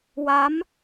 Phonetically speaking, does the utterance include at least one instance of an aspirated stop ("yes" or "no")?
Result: no